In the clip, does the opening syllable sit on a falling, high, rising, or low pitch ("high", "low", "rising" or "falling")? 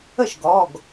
falling